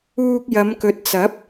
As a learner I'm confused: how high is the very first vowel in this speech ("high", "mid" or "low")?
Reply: high